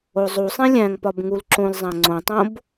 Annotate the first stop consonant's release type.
plain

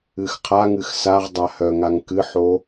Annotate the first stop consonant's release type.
aspirated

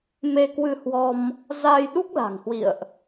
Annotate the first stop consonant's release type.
plain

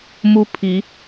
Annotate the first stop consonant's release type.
aspirated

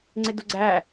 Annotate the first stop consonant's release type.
click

